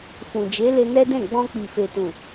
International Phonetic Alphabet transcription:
f ũ˨ d͡ʒ e˨˦ l e˧ n ɛ˦ d ɛ̃˦˨ ɡ͡b ɔ̃˧ k͡p i˨ f e˨ t ũ˨

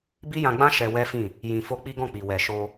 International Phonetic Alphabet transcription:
b i˦ j ã˧ ɡ͡b ã˦ ʃ ɛ˧ w ɛ˦ f ĩ˦˨ | j ĩ˨ f o˧ k͡p i˦ ɡ ɔ̃˦˨ k͡p i˨ w ɛ˨ ʃ o˧

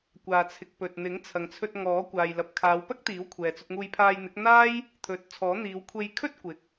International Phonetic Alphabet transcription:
kʷ aː˨ t͡sʰ ɪ˨ k̚ p ɵ˨ t̚ n̪ ɪ˨˥ ŋ t͡sʰ ɐ˨ ŋ t͡sʰ ɵ˧ t̚ ŋ ɔː˨˥ kʷ aː˨ j l ɐ˨ p̚ kʰ aː˨˧ w p ɐ˥ k̚ t̪ iː˨˥ w kʷʰ ɛː˨ t͡s ɵ˧ t̚ ŋ uː˧ j pʰ aː˧ j n̪ ɪ˨˥ k̚ n̪ aː˥ j | t̪ʰ ɵ˨˥ t̚ t͡sʰ ɔː˨˥ n̪ iː˨˧ w kʷʰ e˧ j kʰ ɵ˥ t̚ kʷ ɪ˨ k̚

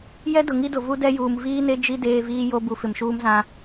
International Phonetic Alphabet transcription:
j ɛ˦ d ʊ˨ ŋ i˦ d ʊ˨ v u˦ d ɛ˦ j uː˨ m v iː˦ n e˦ d͡ʒ i˦ d eː˦ v iː˦ j o˦ b u˨ f ɪ˨ m ʃ uː˦ m z ã˦

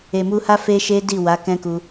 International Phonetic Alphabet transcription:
e˨ m u˧ h a˦ f e˦ ʃ e˦ d i˦˨ w a˨˦ k ɛ̃˦ k u˧

